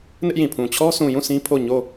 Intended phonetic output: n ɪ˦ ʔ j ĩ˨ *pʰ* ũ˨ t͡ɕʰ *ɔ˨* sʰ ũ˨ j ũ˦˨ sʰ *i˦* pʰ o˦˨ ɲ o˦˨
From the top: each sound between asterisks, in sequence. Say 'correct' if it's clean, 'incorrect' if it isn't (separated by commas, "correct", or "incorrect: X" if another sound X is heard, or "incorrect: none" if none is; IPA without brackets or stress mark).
correct, incorrect: ɔ˦, incorrect: ĩ˦